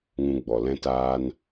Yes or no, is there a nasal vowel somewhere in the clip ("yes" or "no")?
yes